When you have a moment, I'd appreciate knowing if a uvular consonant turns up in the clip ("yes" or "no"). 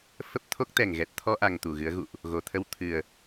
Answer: no